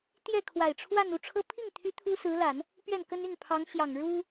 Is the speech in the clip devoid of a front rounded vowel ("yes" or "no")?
no